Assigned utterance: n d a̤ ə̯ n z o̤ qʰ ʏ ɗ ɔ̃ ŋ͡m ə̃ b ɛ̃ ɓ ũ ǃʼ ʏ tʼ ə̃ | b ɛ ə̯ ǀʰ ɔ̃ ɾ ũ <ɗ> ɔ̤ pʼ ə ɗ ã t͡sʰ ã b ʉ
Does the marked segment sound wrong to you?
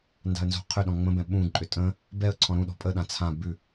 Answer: no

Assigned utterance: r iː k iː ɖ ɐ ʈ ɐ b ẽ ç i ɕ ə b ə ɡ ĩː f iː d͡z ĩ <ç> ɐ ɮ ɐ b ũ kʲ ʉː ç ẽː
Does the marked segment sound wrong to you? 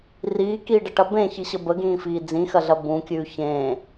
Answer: yes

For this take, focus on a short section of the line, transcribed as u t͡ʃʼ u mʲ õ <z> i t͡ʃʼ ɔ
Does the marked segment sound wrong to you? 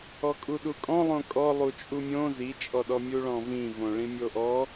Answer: no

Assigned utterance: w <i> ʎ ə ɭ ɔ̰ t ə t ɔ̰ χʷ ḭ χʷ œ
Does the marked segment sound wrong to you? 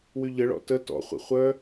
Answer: yes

